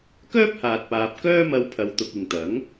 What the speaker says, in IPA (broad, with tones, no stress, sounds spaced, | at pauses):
k œː˥ p̚ h aː˨ t̚ p aː˨ p̚ k œː˥ m ɐ˧ w pʰ ɐ˨ w t̪ ʊ˨ k̚ ɪ˨ ŋ t̪ ɐ˨˥ ŋ